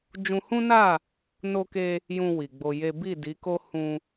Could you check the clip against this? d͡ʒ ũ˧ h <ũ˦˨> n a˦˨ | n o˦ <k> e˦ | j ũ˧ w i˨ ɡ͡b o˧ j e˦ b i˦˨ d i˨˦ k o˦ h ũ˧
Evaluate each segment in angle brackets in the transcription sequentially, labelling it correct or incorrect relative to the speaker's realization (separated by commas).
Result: incorrect, correct